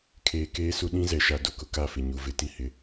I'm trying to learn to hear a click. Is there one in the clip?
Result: no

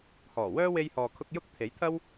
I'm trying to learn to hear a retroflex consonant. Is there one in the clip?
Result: no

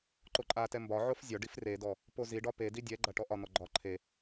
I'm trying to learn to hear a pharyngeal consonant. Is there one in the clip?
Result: yes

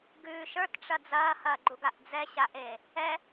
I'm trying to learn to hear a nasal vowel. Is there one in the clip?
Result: no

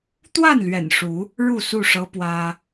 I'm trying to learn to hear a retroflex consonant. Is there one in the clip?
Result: yes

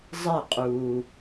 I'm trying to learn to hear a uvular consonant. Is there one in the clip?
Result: yes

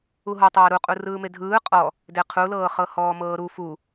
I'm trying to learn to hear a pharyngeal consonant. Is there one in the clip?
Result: no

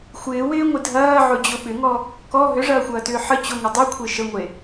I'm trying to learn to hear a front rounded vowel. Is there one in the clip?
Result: yes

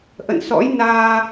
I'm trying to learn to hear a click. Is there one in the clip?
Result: no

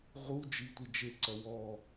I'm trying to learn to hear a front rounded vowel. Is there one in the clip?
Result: no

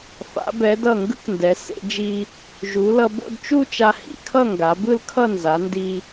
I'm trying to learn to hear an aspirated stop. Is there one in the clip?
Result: yes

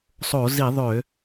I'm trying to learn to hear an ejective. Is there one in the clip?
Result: no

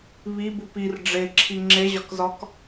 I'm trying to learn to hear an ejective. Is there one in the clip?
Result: no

